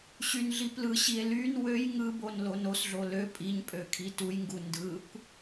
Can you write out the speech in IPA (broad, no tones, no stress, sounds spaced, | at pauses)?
ɕ y n ɮ i p l ɯ ɕ i e̯ l y n w ø j ŋ ɯ b o n l o n o s ɮ o l ø pʼ i ɲ pʼ ø kʰ i t u j ŋ ɡ u n d ɯ kʷ